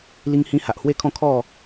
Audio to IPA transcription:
l i˧ ŋ h ĩ˧ h a˨ ʔ h w e˥˧ kʰ ɔ̃˥˧ kʰ ɔ˥˧

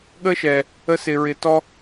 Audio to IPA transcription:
ɠ ə˦ ʃ ɛ˨ | ə˧ s ɪ˨ ɹ ɪ˨ t ɔ˧

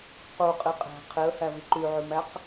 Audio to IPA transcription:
q u qʼ i qʼ æ̤ qʰ e ə̯ h æ v i ǃ y ʕ y m æ q

